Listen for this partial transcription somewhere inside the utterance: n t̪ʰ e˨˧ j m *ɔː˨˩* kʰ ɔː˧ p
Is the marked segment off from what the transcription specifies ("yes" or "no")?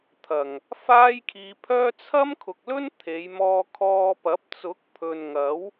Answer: yes